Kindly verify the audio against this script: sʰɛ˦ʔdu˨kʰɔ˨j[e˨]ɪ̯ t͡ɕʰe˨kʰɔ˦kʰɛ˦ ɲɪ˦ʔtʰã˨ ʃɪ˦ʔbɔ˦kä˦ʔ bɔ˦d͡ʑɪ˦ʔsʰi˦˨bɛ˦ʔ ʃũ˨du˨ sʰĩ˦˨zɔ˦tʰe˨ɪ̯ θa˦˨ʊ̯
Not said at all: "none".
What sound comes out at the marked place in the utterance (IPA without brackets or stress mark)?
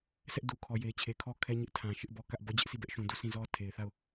e˨